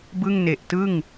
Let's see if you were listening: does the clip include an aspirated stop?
no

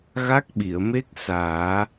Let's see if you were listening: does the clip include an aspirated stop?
no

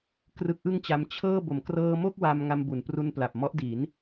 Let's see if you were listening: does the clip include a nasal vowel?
no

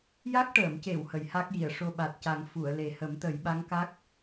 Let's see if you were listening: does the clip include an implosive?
yes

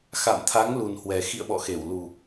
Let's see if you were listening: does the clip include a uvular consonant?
no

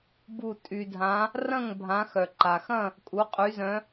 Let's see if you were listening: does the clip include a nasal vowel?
yes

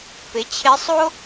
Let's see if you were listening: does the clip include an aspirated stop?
yes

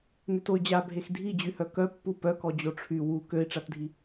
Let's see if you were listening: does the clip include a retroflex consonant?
yes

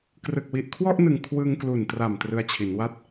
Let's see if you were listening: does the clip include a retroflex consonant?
no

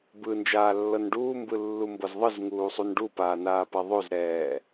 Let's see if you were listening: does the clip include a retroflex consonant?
yes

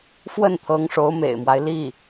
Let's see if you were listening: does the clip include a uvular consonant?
no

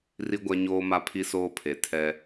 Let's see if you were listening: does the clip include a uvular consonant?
no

